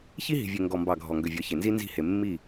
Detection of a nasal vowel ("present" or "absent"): absent